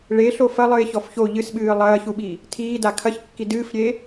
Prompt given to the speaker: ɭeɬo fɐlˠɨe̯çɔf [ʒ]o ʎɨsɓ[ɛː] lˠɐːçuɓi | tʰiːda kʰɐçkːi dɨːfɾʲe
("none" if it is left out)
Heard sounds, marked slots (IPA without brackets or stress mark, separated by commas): ç, ɨː